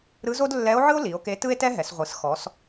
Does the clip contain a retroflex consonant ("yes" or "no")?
no